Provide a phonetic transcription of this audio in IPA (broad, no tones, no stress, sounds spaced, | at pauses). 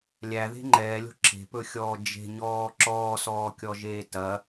lʲ æ ð e̤ ŋ͡ǃ ɛː lʲ o̤ ǁʰ e̤ p ɵ xʲ ɔː d͡ʒ e̤ ɲ ɔː ǁ ɔː s ɔː kʲ ɔ ʒ eː t ɐ